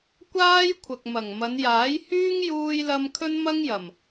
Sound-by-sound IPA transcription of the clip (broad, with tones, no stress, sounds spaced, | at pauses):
kʷ aː˥ j kʷʰ ɐ˨ k̚ m ɐ˨˩ ŋ m ɐ˨˧ n j aː˨˥ j h yː˥ ŋ j uː˥ j l ɐ˥ m kʰ ɵ˥ n m ɐ˥ ŋ j ɐ˨˩ m